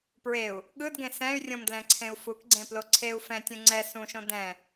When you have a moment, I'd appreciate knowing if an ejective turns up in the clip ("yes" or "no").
no